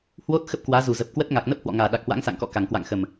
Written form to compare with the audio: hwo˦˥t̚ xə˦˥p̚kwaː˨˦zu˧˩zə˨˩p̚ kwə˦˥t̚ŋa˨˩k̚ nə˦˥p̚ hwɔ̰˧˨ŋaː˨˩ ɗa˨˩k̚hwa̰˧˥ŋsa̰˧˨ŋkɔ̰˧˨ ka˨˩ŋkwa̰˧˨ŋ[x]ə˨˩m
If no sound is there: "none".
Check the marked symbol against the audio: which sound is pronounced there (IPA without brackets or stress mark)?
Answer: x